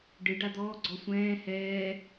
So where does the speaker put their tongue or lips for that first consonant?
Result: retroflex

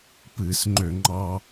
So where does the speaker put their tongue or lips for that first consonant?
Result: lips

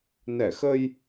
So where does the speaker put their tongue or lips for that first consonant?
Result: tongue tip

